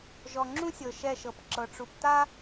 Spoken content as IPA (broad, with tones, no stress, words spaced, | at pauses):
ʒɔ˨ŋ͡ǁũ˦sʲɤ˨ ʃɛ˦˨ʃɤ˨p ǁɤ˨ʈ͡ʂu˨pta˦